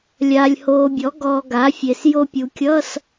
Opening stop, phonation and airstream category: plain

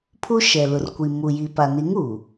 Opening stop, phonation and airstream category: aspirated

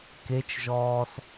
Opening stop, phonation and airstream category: plain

